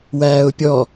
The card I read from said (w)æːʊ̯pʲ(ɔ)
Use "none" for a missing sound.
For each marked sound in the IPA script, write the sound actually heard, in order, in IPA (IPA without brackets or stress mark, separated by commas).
w, ɔ